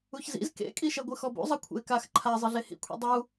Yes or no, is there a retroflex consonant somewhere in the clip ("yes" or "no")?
no